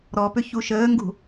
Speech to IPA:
ɾ ɔ p ʏ ç u ʃ əː ŋ ɡ ṳ

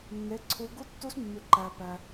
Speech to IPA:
nː e˩˧˩ ǀʰ u˩˧ ɡ u˦˥ tː u˦˥ s mː ʉ˩ ǃ æ˩ p æ˩

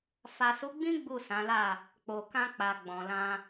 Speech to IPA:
f a˨ s u˨˦ ɡ͡b ĩ˦ ɡ͡b u˦˨ s ã˨˦ l a˦˨ | k͡p o˨ k ã˧ k͡p a˨ ɡ͡b ɔ̃˨ l ã˧

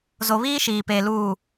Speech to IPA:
z o˨ β iː˦ ʃ iː˨ p eː˨ l uː˨

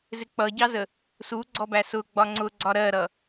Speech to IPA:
z ɪ k͡p ʌ ɟ ɑ z ə | s u ɡ͡ǀ ɔ b æ s ʊ ɡ͡b ɒ ŋ͡ǀ ʊ ɡ͡ǀ ɒ ɾ ɜ ɾ ʌ

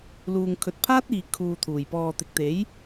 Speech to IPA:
l uː˨ ŋ kʰ ɵ˨ t̚ pʰ aː˥ t̚ iː˨ kʰ uː˨ t̪ʰ uː˨˩ j p ɔː˨ t̪ ɪ˨ k̚ t̪ e˨˥ j

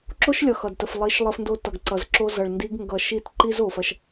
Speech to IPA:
ǁ o˦ ʃ lʲ ʌ˨ x ʌ˨ d t ə˨ f lˠ i˨˦ ʃ lˠ ə˧ f n d o˧ t ʌ˨ ɡ ǀ ʌ˨ z ǁ o˧ z ʌ˨ ɭ n d i˧ ɡ ŋ ɡ ʌ˨ ʃ i˦˨ t ǃ i˦ z o˨ f ɐ˧ ʃ

